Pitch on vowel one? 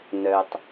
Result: low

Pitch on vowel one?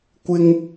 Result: high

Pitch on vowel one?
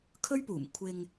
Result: high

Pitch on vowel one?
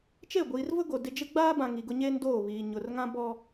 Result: falling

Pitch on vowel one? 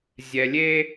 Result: low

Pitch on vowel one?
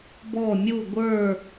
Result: falling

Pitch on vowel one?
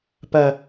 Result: low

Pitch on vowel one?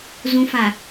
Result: low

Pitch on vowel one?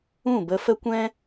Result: falling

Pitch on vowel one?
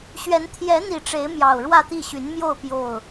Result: rising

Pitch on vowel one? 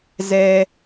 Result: low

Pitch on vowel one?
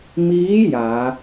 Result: rising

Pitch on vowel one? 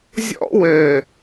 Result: high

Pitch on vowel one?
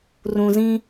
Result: low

